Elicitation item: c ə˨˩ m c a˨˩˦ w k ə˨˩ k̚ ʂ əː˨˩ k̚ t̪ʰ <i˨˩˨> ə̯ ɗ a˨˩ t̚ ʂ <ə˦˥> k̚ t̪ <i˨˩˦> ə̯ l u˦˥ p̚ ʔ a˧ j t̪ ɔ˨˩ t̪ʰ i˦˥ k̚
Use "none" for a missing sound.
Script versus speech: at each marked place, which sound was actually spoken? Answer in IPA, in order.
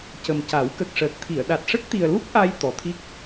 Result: i˨˩˨, ə˦˥, i˨˩

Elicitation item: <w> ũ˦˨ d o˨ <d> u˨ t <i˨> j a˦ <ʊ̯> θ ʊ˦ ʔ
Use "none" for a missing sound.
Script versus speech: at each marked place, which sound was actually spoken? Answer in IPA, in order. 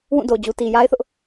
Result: w, d͡ʑ, i˨, ɪ̯

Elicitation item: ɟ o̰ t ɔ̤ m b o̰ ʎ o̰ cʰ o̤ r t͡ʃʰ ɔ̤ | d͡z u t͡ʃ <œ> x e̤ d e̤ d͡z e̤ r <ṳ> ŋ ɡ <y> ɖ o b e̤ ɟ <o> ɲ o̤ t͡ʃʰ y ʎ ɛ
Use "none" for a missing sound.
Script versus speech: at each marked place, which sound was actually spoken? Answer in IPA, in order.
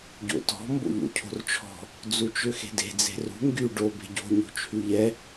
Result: ø, ṳ, y, o̤

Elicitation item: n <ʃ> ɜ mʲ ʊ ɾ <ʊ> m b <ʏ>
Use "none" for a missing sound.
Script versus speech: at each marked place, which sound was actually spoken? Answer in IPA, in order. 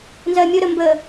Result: z, ə, ə

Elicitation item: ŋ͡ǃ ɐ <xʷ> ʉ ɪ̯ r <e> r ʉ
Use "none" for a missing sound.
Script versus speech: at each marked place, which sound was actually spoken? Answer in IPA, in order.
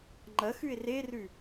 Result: x, e

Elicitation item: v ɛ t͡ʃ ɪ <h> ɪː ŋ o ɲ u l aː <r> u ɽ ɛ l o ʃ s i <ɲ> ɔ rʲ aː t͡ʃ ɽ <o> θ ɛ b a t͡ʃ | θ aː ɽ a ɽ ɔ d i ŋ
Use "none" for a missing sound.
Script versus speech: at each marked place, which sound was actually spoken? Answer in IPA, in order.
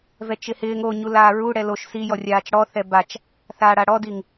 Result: h, ɹ, j, ɔ

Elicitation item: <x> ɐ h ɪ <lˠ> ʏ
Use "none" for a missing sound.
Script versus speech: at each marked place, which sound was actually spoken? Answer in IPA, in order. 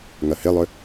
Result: ŋ, lˠ

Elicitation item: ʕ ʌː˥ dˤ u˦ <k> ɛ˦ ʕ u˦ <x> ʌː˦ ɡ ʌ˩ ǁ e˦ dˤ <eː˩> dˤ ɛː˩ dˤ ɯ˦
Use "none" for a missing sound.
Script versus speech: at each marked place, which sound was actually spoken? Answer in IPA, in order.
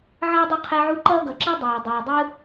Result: qʰ, ǃ, ɛː˩

